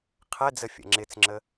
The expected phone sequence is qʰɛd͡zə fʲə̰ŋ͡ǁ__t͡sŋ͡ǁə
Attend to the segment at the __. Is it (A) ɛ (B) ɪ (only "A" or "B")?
B